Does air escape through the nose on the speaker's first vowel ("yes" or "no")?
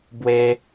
no